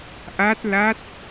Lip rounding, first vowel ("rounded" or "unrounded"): unrounded